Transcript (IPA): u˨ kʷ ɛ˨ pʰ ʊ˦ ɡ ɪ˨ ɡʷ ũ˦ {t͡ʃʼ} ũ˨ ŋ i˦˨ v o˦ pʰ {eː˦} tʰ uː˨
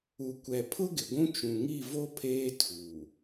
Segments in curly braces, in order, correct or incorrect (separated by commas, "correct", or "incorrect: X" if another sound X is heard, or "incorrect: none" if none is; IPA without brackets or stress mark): incorrect: t͡ʃ, correct